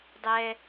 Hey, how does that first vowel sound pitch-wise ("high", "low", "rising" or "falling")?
high